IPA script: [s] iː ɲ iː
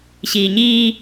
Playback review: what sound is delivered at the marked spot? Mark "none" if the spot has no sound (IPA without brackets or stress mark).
ɕ